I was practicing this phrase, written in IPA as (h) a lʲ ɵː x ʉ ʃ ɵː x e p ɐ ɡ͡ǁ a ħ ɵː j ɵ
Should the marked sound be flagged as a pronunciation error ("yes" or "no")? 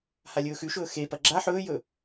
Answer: no